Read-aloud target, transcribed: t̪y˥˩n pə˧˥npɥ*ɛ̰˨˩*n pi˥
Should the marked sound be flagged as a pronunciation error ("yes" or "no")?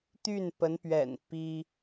no